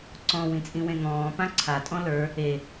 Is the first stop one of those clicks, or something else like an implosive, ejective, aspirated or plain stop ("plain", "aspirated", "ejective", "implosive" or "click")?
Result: click